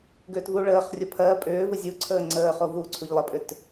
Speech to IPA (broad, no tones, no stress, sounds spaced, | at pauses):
ɡ ʏː t v u ɭ əː χ rʲ ʊ pʰ ɜ pʼ ʏː v ɯ zʲ u ǀʰ əː ŋ͡ǀ əː χ o v u ǀʰ u ʎ lˠ ə pʼ ʏ t